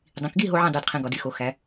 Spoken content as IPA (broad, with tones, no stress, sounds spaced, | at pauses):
dˤ ĩ˩˧ k ɡ i˥˧ ɦ o˦˥ ʕ ĩ˥˧ dˤ i˩˧˩ d qʰ ĩ˧ ɡ ɒ˩˧ d i˩˧˩ x o˩˧ x æ˩˧